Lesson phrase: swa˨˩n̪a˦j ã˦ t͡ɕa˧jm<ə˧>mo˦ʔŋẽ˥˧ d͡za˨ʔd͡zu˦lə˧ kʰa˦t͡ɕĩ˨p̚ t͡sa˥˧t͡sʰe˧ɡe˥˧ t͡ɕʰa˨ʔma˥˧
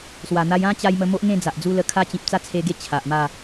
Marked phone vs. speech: correct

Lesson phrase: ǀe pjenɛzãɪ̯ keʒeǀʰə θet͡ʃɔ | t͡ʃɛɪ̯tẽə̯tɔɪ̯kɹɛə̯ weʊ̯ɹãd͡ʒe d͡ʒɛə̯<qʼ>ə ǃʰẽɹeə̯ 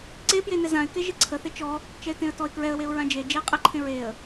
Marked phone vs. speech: correct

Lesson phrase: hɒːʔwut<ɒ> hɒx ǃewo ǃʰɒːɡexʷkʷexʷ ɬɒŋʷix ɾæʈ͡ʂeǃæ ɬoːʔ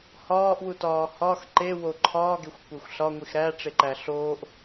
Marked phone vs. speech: incorrect: ɒː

